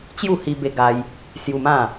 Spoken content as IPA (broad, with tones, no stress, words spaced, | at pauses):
t͡ɕju˥˧hi˧ be˧ɡa˧j | sju˧mã˥˧